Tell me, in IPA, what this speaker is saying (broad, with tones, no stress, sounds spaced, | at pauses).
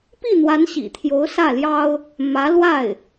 p i˥˩ n̪ w a˧˥ n ɕ ḭ˨˩ t̪ʰ j o˧˥ ʊ̯ s ä˥˩ l j ɑ˥ ʊ̯ | m ä˧˥ l w a˥˩ ɪ̯